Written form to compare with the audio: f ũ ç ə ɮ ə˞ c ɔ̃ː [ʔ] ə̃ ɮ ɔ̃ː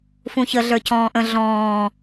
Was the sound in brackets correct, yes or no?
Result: yes